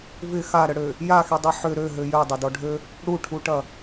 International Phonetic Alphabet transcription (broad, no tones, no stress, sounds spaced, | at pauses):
v ɪ x a ɾ ə ɽ ø | j a x i dˤ i ħ ʏ ɾ ø ɦ ø j œ dˤ ɐ d ɔ ɖʱ ø | ɽ u ʈʰ u ʈ ɐ